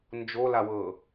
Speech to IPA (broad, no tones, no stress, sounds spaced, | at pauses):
n d͡ʒ o l a w ɤ